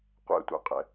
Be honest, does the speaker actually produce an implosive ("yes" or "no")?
no